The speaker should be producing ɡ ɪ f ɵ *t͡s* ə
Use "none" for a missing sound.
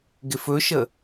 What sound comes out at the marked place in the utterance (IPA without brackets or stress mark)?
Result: ʃ